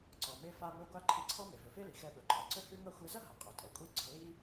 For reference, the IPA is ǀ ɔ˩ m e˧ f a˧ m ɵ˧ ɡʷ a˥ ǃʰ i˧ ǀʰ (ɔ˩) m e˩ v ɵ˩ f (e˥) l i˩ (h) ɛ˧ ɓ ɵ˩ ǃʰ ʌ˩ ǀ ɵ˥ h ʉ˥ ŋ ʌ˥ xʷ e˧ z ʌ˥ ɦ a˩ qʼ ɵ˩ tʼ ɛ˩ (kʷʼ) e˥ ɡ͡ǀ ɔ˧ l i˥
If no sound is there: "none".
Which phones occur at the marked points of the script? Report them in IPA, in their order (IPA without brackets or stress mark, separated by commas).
ɔ˥, e˥, x, kʷʼ